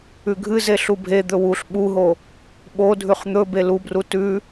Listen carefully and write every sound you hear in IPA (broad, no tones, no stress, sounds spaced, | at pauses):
ʉ ɡʱ ɨ z e ɬ u bʱ e d̪ ɵ w u ɬ ɓ u ɦ o | ɓ o dʱ ʉ χ n̪ ɵ b e l u b r u t ʉ